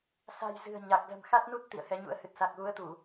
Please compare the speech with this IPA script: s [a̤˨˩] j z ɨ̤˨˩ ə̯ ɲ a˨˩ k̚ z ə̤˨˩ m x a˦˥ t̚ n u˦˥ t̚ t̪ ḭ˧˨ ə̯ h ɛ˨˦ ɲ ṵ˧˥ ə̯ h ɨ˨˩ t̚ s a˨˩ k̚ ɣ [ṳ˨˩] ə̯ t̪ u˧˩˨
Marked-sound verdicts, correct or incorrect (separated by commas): correct, incorrect